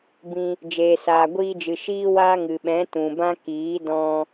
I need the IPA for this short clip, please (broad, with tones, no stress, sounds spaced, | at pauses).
b ĩ˧ | d͡ʒ eː˨ s aː˨ ɡʷ iː˧ d͡ʒ ɨ˨ ʃ iː˦ w aː˦ ŋ ɨ˨ ɓ ɛ̃˨˦ t ũ˨ b ã˦ k iː˨˦ d ɔ̃˧